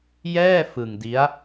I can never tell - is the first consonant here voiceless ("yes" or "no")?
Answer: no